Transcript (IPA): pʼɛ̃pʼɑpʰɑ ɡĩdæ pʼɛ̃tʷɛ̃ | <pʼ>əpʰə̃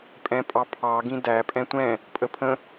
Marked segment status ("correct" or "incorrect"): correct